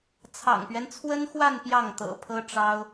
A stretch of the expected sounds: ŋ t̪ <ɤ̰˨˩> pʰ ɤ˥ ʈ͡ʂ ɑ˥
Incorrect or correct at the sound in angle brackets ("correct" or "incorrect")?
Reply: correct